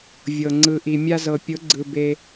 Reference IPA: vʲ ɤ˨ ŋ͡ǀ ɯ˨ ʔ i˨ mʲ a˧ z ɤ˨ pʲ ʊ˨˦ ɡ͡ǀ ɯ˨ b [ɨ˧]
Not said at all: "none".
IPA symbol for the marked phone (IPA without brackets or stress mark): e˧